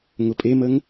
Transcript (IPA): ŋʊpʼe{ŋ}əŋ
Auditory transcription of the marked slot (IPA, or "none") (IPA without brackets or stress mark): m